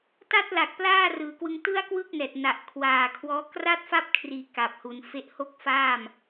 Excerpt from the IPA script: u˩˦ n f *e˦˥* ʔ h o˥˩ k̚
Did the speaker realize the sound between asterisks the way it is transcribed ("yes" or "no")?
yes